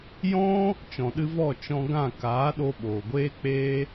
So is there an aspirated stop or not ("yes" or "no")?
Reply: no